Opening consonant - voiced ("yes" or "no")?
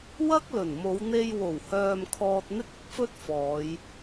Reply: yes